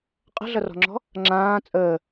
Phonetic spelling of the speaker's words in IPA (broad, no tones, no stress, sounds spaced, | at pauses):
qʼ ə̤ ɮ ʌ r ɔ̤ ŋ͡ǁ ɔ̤ | ŋ͡ǁ ãː t͡sʼ əː